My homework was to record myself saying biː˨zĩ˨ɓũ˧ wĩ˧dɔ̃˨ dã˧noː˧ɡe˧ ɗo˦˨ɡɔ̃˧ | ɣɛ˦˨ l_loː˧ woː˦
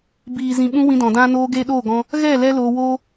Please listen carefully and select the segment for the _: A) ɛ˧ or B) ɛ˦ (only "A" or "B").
B